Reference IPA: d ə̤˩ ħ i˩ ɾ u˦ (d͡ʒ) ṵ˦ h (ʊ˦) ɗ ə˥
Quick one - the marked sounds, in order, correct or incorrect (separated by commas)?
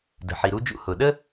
correct, incorrect